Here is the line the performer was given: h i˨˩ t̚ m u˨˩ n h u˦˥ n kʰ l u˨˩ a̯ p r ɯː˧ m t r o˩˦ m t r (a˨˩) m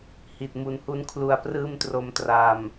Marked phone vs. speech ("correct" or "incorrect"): correct